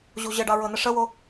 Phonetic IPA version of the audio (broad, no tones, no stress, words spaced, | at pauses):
ʑuʑəɖɑ ɹɤnəʂəwo